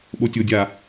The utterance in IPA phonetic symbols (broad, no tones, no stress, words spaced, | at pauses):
ɓotʲodʲa